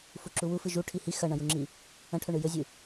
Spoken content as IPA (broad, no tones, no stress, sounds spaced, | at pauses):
f u ǁ u w u f ɨ ʒ u ʈʰ i h i x ɐ ɳ ɐ̃ j u ŋ͡ǁ i | ɐ̃ ʈʰ ɵ ɳ ɨ j ɵ zʲ ɨ